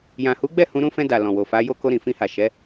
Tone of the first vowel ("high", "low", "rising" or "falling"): low